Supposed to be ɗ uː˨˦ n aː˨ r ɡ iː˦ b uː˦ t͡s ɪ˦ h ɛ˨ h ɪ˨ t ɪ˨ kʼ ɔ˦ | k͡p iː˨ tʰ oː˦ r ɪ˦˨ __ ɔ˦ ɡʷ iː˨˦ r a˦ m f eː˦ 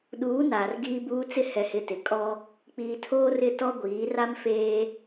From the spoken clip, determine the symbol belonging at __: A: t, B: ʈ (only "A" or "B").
A